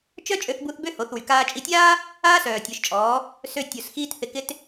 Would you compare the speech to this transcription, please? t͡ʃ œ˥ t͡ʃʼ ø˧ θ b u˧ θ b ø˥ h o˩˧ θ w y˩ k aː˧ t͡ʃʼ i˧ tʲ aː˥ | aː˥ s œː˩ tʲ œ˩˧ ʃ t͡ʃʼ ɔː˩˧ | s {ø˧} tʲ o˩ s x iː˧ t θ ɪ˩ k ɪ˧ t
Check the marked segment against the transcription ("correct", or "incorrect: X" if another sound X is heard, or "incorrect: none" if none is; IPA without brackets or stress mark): correct